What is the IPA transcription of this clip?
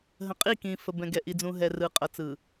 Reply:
ɦ ə̃˨ qʼ i˦˨ k ĩ˨ f ə˨ b ɛ̃˨ ɡ ɛ˨ ʔ i˨ d͡z ũ˨ ɦ ɛ˨ r ɯ˨ qʼ ʌ˨ t͡s ɯ˨

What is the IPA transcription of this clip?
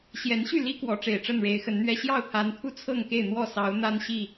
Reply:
ɕ j ɛ˨˦ n ɕ y˥˨ l i˦ k w ɔ˨˦ ʈ͡ʂ e˨˩ ɪ̯ ʈ͡ʂ ə˥˨ n ɻ e˨˦ ɪ̯ x ə˨˦ n n̪ ɥ ɛ˦ ɕ j ɑ˥˨ ʊ̯ t̪ʰ a˨˦ n t̪ʰ u˦ t͡sʰ ɤ˥˨ ŋ k e˥˨ ɪ̯ n̪ w ɔ˥˨ s ɑ˨˦ ʊ̯ n̪ a˦ n ɕ i˥˨

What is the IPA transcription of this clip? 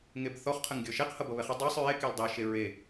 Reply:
ŋ e b θ ɔ χ qʰ ə ŋ ɡʲ ɔ ʃ ɛ q h ʌ b ʌ β ɛ χ ə dˤ e sˤ ɹ e k ɛ l dˤ e ʃ e ɹ e

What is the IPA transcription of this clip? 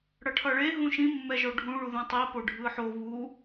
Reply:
ɽ ʌ ʈʰ ʌ ɭ e ɦ ũ ʃ ĩ mː ɛ ʒ o ɖʱ ũ ɭ u ð ũ tˤ i p o ɖʱ ɯ ħ o β u

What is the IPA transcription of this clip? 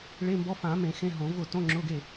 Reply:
ɭ e˧˥˧ m b ɔ˧˥˧ f ã˨˩˦ m ẽ˨˩˦ x ẽ˧˥˧ ɦ õ˨˩˦ v ʊ˥˩ t õ˧˥˧ ŋ͡ǁ ʊ˧˥˧ ɡ e˥˩

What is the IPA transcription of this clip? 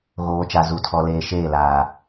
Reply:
ɣ oː˨ t͡ʃ a˨ z u˨ tʰ ɔ˨ l eː˨ ʃ eː˦˨ l aː˨

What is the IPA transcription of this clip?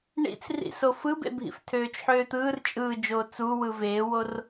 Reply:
ɳ ḭ t͡s r ḭ s o f ɯ b ḛ bʱ ḭ f tʰ øː t͡ʃ ħ øː t̪ ɯː r t͡ʃʼ ɯː d͡ʒ oː t͡s u w ɯ v eː w o r

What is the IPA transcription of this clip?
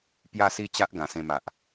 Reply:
p j a˥˧ s i˦ t͡ɕ a˦ ʔ ɡ ã˨˩ s ẽ˧ m a˨ ʔ

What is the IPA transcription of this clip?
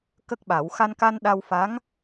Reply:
k ə˦˥ k̚ ɓ a˨˩˦ w x a˧ n k a˧ n ɗ a˧ w f a˧˥ ŋ

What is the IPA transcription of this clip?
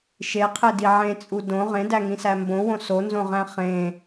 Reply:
ʃ e qʰ e d i ʕ ẽ t͡sʼ u d õ ʁ ẽ d æ ŋ ĩ s æ m b õ w õ s o n z õ ʁ æ̃ χ ẽ

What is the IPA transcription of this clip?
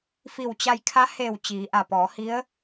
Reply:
f i˧˩ w t͡ɕ a˧ j kʰ a˧˥ h eː˧˩ w t͡ɕ iː˩˧ ʔ a˧˩ p ɔː˩˧ h i˧˥ ə̯

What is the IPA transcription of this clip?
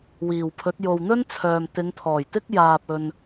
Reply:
w iː˨˩ w pʰ ɵ˨˥ t̚ j o˨ w n̪ ɵ˥ n t͡sʰ œː˨ m t̪ ɪ˨˧ ŋ t̪ʰ ɔː˨˩ j t̪ ɪ˥ k̚ j aː˨ p̚ ɵ˨ n

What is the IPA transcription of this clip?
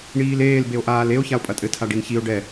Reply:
ɳ iː l eː l b e o̯ ʔ aː l e o̯ ç a o̯ pʼ ɐ tʼ ɘ tʰ a ɖ i n ç i o̯ ɖ ɛ

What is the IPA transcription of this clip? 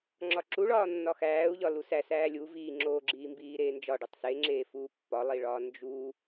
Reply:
ŋ͡ǁ ɒ ǁ u ɭ ɒː nː ɒ x æː u̯ ʎ ɒ l u s æ s æː lʲ u v iː ŋ͡ǁ oː ɡ͡ǁ iː m b iː ɾ eː n d͡ʒ ɒ ɖ u tˤ s e ŋ͡ǁ eː f uː pː ɒ lˠ i ɭ ɒː n d͡ʒ uː

